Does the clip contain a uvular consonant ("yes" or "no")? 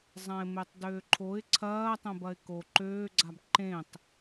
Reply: no